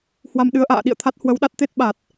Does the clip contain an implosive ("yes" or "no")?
yes